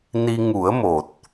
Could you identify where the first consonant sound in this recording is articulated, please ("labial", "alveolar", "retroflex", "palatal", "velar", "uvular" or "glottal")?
alveolar